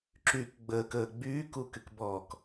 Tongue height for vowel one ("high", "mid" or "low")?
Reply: high